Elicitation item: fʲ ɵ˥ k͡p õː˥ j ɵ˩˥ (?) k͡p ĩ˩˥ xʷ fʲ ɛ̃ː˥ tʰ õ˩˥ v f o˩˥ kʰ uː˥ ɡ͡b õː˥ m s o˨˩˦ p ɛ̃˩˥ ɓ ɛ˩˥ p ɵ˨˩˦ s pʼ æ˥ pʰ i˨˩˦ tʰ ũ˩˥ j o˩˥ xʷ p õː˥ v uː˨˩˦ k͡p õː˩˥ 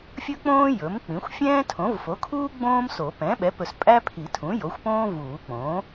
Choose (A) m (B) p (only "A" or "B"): A